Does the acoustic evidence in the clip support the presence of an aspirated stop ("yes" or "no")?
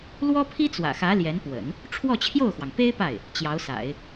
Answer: yes